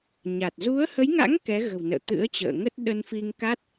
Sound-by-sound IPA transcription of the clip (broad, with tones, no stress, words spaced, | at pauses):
ɲa˨˩t̚ zu˨˦ə̯hə˨˦jŋa̰˧˥ŋ kɛ˨˦ɣə̤˨˩wnə̰ː˧˨ t̪ɨ̰˧˥ə̯t͡ɕə̰ː˧˨ ŋə˦˥t̚ ɗə˧nfi˧ŋ ka˦˥t̚